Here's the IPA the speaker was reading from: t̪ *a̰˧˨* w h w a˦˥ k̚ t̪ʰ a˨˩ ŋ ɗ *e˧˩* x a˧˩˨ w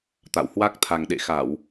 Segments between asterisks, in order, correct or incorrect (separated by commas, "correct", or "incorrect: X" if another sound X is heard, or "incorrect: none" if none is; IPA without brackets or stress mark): correct, incorrect: ḛ˧˨